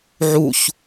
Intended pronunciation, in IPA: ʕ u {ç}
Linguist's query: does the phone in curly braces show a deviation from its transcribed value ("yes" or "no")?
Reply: no